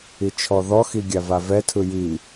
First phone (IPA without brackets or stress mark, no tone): i